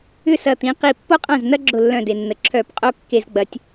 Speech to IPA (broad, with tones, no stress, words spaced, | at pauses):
ʏ˥˩sɐ˧˩t̪ĩ˩˧ qi˧˩pːo˥qʼã˥˩z nɐ˥ɡ͡ǁʊ˧˩lːœ̃˧˩ de˩nːə˩ǁʰœː˧˩˧pqʼo˥˩ kːe˧˩˧zɡ͡bɐ˩˧tʲ